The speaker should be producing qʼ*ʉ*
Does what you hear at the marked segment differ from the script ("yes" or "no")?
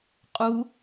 yes